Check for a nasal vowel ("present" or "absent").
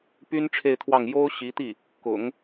absent